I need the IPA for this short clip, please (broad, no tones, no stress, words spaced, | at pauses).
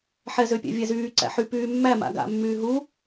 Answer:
ħɛzøpʲæ̰ vʲæzyː ǀæ̰ħy pyːmːæ ma̰ɡa̰mːyː ɦu